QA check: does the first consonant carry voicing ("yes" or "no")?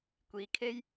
no